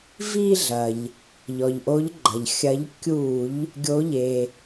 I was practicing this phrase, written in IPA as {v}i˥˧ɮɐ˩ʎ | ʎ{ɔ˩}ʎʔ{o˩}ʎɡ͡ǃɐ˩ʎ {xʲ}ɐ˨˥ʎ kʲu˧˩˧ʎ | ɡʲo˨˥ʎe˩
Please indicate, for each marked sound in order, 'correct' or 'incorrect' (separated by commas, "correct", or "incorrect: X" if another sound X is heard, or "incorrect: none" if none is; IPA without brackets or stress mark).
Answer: correct, correct, incorrect: o˨˥, correct